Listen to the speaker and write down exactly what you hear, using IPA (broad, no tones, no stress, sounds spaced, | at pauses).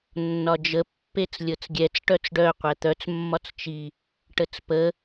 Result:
nː ɒ d͡ʒ ə pː e t͡s lʲ ɤ t͡s ɡʲ ɛ t͡s ʈ œ t͡s ɖ œ qʷ ɛ t̪ œ t͡s mː ɒ t͡s t͡ʃ i | ʈ ə t͡s p ə